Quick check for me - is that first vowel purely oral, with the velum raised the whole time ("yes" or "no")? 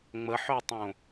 yes